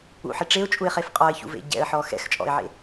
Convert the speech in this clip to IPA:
ṵ ħ e ʈ͡ʂ e ʊ̯ t͡ʃʼ u ɪ̯ χ e f qʼ ɔ ɪ̯ ç ṵ v ḛ ɟ ɛ̰ ə̯ ħ ɔ x ɛ̰ x t͡ʃʼ ɔ̰ ɪ̯ ʕ ḛ

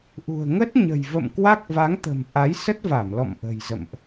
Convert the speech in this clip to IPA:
ʔ ṳ˨˩ ə̯ ŋ ə˦˥ t̚ ɲ ə̤˨˩ j v ə̰˧˨ m k w a˦˥ k̚ v a˨˦ ŋ t̪ ə̤˨˩ m ʔ a˨˦ j s ə˦˥ t̚ v a˧˩ m l ɔ̰˧˨ m ʔ ə̤˨˩ j z ə̰˧˨ m ʔ

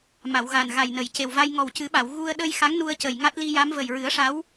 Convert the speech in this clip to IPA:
m a˨˩˨ w ɣ a˨˩ n ɣ a˨˩ j n ə˨˩ j c e˨˩ w v a˧ j ŋ ɔ˨˩ w c ɨ˨˩˦ ɓ a˨˩˨ w ɣ u˧ ə̯ ɗ ə˧ j x a˧˥ ŋ n u˧ ə̯ c ə˨˩ j ŋ a˦˥ t̚ l i˧ j a˧˥ m v ə˨˩ j ɹ ɨ˨˩˦ ə̯ ʂ a˧˥ w

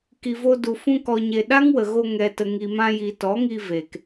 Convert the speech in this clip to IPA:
k i˨ v o˧ d u˨ f ũ˧ k ɔ˨ ɲ e˨ ɗ a˦ ŋ w ə˨ ɣ o˧ ŋ ɛ˨ t ə˨ ŋ i˨ m ã˧ j i˨ t ɔ˨˦ ŋ i˧ v e˨ k

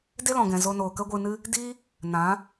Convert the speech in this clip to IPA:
d e˦ l ɔ̃˨ ɡ ɛ̃˨ z o˧ n oː˨ k ə˦ ɡʷ ɨ˧ n ɨ˦ | d iː˦ | n ã˨˦

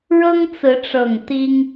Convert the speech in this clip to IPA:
ɻ ɤ˦ ŋ t͡s ɹ̩˨˦ ʈ͡ʂ ɤ˨˩ ŋ t̪ i˦ ŋ

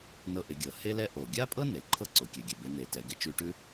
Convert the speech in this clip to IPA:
n ɤ˧ ʔ ɪ˩˧ ɡʲ ɤ˩ h e˥ l ɛ˥ ʔ o˩ ɡʲ a˥ pʼ ɤ˥ n e˩˧ ǃʰ ɤ˥ ǀ o˩˧ kʲ ɛ˩˧ ɡʲ ɛ˩ b e˧˥ n̪ e˩˧ t ɛ˩˧ ɡ ɪ˧˥ t͡ʃ ʉ˧ ʈ ʉ˥

